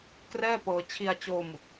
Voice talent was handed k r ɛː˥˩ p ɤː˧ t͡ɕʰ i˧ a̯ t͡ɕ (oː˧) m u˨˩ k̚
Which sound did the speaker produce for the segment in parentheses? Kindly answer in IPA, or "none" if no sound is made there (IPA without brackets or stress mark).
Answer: oː˧